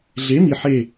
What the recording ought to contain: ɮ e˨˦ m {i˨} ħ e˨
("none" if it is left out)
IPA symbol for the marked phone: i˨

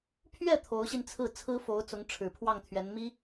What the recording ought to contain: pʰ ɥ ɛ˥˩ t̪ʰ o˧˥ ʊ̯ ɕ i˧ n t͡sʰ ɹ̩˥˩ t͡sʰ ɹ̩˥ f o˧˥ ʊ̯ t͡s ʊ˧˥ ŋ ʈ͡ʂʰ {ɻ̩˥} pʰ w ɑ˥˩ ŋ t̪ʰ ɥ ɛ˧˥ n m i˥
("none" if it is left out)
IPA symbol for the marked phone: ɻ̩˨˩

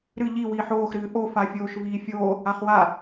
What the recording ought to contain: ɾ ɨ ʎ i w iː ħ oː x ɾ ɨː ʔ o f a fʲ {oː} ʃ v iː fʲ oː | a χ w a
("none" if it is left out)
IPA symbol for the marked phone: oː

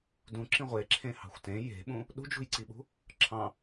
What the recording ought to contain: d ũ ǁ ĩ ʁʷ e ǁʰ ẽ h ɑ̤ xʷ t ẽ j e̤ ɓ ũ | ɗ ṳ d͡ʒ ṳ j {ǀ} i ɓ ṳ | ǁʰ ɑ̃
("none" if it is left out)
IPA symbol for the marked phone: ǀ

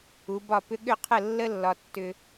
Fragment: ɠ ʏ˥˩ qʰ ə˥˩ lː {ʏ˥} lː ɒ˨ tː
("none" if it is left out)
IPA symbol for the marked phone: ə˥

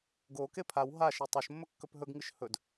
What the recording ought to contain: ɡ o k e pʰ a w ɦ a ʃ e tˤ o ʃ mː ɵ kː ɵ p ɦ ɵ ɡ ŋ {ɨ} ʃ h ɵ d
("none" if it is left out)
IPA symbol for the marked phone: ɨ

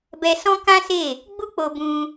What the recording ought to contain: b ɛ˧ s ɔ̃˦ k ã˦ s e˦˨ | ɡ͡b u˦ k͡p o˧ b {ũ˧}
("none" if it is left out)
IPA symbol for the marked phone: ũ˧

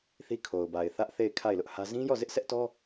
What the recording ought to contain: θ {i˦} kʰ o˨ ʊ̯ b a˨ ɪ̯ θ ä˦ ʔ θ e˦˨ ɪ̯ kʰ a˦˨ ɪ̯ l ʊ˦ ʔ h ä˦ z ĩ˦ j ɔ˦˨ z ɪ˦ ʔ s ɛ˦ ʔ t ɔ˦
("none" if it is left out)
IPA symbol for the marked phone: i˦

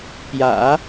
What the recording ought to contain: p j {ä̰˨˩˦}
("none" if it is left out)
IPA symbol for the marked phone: ä̰˨˩˦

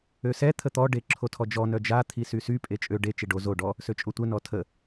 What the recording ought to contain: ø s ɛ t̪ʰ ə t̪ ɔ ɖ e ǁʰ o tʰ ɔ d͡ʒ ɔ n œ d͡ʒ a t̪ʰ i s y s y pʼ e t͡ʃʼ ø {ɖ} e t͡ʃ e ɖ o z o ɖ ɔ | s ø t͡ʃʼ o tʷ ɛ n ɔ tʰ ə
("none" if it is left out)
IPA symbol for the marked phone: ɖ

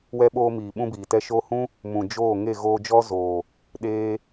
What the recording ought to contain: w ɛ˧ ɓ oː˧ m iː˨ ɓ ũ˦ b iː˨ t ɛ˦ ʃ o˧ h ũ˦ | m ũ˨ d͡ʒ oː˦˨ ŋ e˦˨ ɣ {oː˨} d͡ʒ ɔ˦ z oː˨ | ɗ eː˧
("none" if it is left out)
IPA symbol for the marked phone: oː˧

